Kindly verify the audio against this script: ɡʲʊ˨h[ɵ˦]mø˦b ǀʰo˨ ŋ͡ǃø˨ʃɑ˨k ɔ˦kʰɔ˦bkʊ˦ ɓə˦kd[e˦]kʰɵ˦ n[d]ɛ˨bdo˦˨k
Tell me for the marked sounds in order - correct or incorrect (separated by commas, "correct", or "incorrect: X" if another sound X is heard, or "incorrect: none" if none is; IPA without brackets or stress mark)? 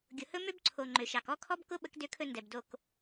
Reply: correct, incorrect: ø˦, correct